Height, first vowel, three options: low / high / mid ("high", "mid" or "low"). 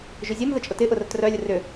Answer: high